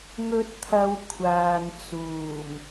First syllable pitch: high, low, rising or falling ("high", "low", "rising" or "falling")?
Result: high